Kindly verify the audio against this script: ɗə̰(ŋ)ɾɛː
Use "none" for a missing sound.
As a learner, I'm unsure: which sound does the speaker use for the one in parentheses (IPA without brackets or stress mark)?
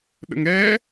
ŋ